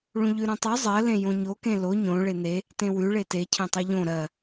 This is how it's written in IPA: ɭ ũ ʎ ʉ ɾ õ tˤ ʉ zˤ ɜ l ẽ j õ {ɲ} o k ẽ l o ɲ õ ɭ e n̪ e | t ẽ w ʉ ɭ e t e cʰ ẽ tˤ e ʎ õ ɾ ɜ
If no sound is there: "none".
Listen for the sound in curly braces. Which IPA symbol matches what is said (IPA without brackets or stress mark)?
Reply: ɲ